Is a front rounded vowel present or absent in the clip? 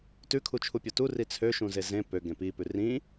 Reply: present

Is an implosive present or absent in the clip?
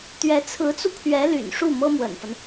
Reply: absent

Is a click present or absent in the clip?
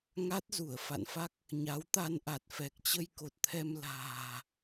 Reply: absent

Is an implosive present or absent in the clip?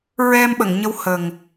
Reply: present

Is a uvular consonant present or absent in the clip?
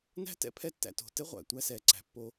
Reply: present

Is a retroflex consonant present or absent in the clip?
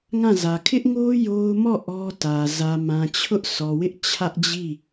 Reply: absent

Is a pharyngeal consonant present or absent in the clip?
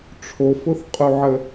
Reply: present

